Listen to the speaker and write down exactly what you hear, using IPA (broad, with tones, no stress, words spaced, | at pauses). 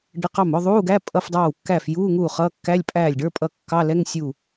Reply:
ɖə˧˥˧qɑ˥˩m ʊ˧˥˧ðˤuː˧˥˧ɡæ˧˥˧ pʼʌ˧˥˧fdˤɑː˥˩wkːæː˥˩f ju˧˥˧ ŋuː˥˩χʌː˧˥˧ kːæ˧˥˧lʲ pʼæː˥˩lʲɖə˞˧˥˧pʼʌ˥˩ kːɑ˧˥˧lɛ˧˥˧ŋ sʲu˥˩